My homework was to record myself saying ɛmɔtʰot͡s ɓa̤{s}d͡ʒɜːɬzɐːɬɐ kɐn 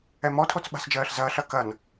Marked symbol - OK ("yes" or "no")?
yes